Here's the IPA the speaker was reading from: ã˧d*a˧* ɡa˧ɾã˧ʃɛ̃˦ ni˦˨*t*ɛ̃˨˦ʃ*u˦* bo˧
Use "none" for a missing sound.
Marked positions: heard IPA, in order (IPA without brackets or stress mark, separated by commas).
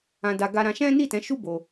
a˧, t, u˦